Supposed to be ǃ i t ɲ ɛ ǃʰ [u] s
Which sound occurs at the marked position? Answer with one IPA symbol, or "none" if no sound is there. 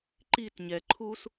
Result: u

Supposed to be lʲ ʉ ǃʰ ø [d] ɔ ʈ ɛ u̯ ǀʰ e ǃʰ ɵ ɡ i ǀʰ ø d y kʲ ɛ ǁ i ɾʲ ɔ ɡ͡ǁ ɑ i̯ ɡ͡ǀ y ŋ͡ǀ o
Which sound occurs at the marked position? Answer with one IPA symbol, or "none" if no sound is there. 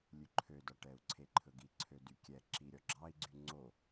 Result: d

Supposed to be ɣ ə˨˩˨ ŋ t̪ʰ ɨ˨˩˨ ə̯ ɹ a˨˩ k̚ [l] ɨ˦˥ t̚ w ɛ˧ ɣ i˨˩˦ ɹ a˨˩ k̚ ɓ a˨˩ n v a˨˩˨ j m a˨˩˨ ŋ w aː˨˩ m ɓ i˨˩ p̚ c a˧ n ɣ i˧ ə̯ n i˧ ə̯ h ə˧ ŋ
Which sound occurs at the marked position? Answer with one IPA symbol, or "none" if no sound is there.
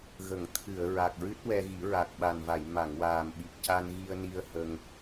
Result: ɹ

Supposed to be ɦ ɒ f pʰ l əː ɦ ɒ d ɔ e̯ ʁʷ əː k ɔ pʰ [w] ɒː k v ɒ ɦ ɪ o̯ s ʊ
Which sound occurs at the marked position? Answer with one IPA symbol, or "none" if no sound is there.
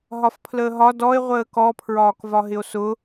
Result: ɹ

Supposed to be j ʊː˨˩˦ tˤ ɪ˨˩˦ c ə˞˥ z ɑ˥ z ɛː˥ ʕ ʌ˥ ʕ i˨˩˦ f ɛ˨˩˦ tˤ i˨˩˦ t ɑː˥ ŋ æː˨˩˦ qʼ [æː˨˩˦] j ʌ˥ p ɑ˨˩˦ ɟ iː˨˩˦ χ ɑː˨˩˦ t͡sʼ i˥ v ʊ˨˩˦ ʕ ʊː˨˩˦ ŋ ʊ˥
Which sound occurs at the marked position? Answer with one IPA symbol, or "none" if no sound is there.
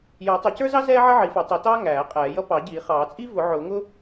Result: ɛː˨˩˦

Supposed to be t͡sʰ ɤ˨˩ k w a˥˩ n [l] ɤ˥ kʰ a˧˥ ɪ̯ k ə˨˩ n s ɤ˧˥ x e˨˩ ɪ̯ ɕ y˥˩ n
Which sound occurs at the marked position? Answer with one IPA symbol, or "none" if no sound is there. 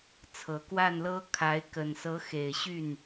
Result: l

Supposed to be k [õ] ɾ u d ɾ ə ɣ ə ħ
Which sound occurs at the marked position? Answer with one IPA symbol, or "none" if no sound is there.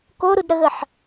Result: o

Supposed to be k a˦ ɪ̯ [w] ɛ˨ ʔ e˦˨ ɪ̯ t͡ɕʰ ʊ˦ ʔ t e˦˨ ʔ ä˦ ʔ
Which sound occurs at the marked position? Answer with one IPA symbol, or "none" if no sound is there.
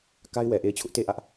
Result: w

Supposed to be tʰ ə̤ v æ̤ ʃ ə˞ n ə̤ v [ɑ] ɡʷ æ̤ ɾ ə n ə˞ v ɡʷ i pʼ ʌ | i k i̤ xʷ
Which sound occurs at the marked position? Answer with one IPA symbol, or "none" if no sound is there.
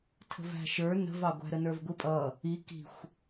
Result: ɑ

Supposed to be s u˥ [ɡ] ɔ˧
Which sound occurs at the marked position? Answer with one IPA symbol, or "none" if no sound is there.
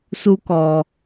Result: k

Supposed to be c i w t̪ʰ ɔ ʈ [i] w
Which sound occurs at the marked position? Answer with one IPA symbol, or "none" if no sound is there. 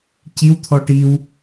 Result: i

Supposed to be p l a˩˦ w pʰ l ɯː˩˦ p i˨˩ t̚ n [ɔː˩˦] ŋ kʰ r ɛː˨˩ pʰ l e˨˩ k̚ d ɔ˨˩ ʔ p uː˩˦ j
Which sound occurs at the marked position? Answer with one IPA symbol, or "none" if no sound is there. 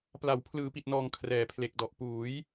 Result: ɔː˨˩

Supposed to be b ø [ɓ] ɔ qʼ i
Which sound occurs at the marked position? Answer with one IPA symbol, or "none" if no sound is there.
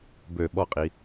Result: ɓ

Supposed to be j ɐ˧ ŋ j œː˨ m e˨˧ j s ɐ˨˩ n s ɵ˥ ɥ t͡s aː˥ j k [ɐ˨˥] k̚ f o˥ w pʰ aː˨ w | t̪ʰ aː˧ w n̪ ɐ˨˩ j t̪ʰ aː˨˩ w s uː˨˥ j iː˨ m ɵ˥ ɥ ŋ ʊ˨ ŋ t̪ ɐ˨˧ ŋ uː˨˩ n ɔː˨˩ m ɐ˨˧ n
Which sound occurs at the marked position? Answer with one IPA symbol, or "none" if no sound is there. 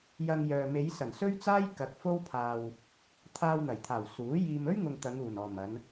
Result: ɐ˨˥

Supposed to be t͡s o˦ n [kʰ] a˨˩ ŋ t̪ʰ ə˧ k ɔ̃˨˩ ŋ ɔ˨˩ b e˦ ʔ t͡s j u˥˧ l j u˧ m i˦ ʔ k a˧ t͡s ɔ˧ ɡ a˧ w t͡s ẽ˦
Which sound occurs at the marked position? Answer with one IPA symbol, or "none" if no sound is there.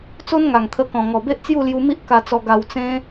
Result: ŋ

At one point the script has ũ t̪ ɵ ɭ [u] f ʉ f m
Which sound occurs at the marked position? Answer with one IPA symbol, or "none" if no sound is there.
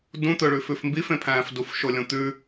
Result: ʉ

